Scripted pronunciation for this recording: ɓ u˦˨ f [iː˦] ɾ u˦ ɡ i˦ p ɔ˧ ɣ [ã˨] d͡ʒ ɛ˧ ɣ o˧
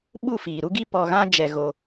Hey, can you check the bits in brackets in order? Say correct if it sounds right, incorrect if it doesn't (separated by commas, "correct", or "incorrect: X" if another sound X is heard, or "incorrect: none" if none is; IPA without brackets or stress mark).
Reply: incorrect: iː˨, incorrect: ã˦